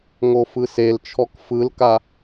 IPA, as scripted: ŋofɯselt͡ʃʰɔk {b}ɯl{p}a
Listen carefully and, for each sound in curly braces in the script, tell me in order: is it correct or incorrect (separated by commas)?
incorrect, incorrect